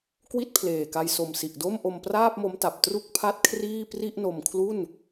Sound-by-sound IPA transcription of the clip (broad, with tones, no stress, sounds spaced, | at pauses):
k w i˥˩ t̚ pʰ l eː˨˩ k a˧ j s o˨˩ m s i˨˩ ʔ d o˥˩ m ʔ o˧ m p r aː˥˩ p̚ m o˦˥ m t a˨˩ p̚ t r u˥˩ k̚ pʰ a˥˩ t̚ kʰ r iː˥˩ p r i˥˩ ʔ n o˧ m kʰ l u˥˩ n